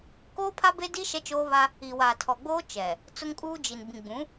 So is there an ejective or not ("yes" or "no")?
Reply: yes